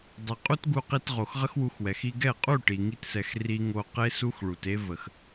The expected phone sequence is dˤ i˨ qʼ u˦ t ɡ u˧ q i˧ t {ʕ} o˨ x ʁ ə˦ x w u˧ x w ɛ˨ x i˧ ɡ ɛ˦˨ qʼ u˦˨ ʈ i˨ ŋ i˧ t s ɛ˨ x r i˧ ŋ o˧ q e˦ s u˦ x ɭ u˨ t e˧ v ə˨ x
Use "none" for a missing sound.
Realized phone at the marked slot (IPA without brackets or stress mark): ʁ